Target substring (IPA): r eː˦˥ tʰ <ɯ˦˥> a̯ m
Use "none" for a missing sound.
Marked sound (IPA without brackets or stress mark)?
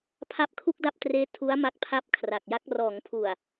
u˦˥